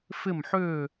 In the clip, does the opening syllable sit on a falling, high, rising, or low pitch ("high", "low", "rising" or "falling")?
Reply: falling